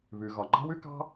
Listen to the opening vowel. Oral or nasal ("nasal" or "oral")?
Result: oral